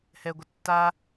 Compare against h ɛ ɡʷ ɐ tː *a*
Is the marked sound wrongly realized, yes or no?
no